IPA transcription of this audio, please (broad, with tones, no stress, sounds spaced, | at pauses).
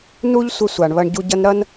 n u˥ ʎ sʷ ɘ˦ sʷ a˨ ɳ β ɐ˦ ɳ ɟ u˦ ɟ ɐ˥ n ɾ ɐ˥ n